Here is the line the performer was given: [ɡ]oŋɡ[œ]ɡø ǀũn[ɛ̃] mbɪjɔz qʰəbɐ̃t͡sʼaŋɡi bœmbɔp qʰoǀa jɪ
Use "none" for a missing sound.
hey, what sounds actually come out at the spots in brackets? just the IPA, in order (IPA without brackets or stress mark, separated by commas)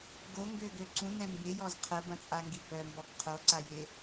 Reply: ɡ, ø, ɛ̃